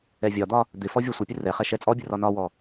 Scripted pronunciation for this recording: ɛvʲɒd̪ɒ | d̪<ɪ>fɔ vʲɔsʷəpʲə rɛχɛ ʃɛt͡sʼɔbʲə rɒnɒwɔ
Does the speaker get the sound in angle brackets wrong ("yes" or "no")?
no